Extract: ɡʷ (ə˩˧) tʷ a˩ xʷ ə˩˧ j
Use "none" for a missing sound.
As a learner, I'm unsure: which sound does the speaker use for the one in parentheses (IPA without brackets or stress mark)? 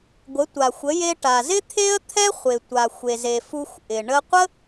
ə˩˧